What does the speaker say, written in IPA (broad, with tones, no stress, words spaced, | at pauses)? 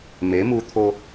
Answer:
me˨˦mu˧t̪ʰo˧